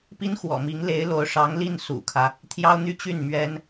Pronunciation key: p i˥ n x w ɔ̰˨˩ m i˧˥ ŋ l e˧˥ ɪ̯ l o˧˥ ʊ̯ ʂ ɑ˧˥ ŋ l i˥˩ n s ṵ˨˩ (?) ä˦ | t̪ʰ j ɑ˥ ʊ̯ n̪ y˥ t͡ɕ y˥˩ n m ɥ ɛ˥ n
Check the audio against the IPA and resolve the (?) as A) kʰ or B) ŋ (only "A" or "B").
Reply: A